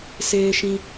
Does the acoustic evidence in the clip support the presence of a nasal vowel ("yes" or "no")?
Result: yes